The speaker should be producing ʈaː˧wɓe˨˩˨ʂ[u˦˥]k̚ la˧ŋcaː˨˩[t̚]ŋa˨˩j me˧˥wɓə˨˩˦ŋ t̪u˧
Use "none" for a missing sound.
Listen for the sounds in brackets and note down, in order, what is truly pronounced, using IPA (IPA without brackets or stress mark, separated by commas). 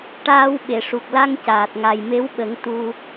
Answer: u˨˩, t̚